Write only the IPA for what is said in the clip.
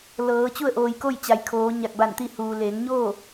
l ɤː˩˧ t͡ɕ u˥˨ ə̯ ʔ oː˩ j k o˥˨ j t͡ɕ a˩˧ j kʰ oː˩˧ ɲ a˧˩ k̚ b a˧˩ n t̪ i˥˨ h uː˩ l eː˩˧ ŋ ɲ oː˥˨

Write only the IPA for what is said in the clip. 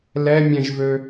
l ɛ mʲ ɛ̃ ʒ v ø

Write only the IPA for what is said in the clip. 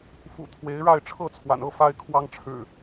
f ṵ˨˩ t̪ʰ w e˨˦ ɪ̯ ɻ a˥˨ ɪ̯ ʈ͡ʂʰ ɤ˥˨ t͡sʰ w a̰˨˩ n ɤ˥˨ f a˦ ɪ̯ kʰ w ɑ˦ ŋ ʈ͡ʂʰ ɻ̩˨˩

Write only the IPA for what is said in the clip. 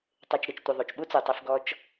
tˤ e˨ t͡ʃ ɾ ɪ˨ t͡ʃ tʷ ɪ˨ ðˤ u˨ t͡ʃ ɓ u˦ t͡s u˨ tˤ i˧ f ɡ ɔ˧ t͡ʃ

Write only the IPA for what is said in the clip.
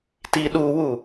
t i ɗ u w u

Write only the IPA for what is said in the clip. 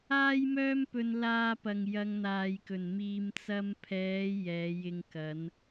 aː˥ j m œː˥ m p ɵ˧ n l aː˧ p ɐ˨ ŋ j ɐ˧ ŋ n̪ aː˨ j k ɵ˨˩ n m iː˨ m t͡s ɐ˧ m pʰ ɛː˨˧ j ɛː˨˧ j ɪ˧ ŋ k ɐ˨˧ n

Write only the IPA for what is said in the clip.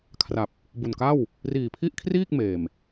kʰ r a˨˩ p̚ | b u˨˩ n k a˥˩ w | r iː˨˩ pʰ i˥˩ ʔ kʰ r iː˥˩ k̚ m eː˨˩ m

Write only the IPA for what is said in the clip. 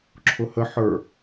ǁʰ ʊ h ə ħ ə˞

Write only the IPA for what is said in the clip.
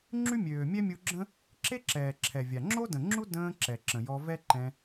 ŋ͡ǁ y˦ mʲ øː˨ mʲ ɛ˦ mʲ u˧ ɡ͡ǁ ə̃˦ | ǁ e˦ ǁ ɛː˨ ǁʰ ɛ˨ vʲ a˨ ŋ͡ǁ o˦ d ə̃˨ ŋ͡ǁ u˦ d ə̃ː˧ ǁ ɛ˨ ǁ ə̃˨ j ɔ˧ v ɛ˦ ǃ ɛ̃˧

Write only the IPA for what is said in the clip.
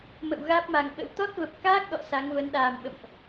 m ə̰˧˨ w ɣ aː˦˥ p̚ m a˨˩ ŋ ɓ ə̰˧˥ w t̪ ɔ˦˥ t̚ v ə˨˩ p̚ k aː˦˥ k̚ ɗ ɔ̰˧˨ s a˨˦ ŋ v əː˨˦ n ɗ aː˨˩ m ɓ ə̰˧˨ m ʔ

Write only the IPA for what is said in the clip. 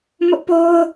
m ʊ˦ ʔ p o˦ ʊ̯

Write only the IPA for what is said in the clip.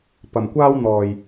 p ɐ˨˩ m kʷ aː˥ w n̪ ɔː˨˩ j

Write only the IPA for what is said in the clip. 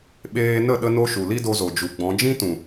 ɓ eː˧ n ə˦˨ ɗ ə˦ n o˦ ʃ u˨ l i˦ d o˧ z o˨ d͡ʒ u˨ ɡ͡b ɔ̃˨˦ d͡ʒ ĩ˦ t ũ˨

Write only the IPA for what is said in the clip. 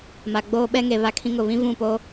m a˨ ɡ͡b oː˦ ɓ ɛ˦ ŋ e˨ β a˦ kʰ ĩ˦ ŋ ʊ˦˨ β ĩ˦ v ũ˦˨ p o˦

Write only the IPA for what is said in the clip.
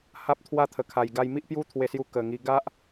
h a˦ p̚ t̪ʰ w a˥˧ t̪ʰ ə˧ kʰ a˧ j ɡ a˦ j m i˦ ʔ p j u˦ t̪ʰ w e˧ s j u˧ k ə˨˩ ŋ i˧ ɡ a˦ ʔ

